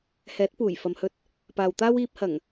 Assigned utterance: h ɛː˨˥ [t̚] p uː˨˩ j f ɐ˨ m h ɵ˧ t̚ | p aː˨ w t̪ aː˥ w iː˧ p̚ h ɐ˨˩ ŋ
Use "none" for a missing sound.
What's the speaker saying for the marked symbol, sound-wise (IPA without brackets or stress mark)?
t̚